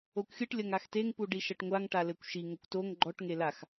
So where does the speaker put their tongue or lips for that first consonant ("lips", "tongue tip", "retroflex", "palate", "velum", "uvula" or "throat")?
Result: velum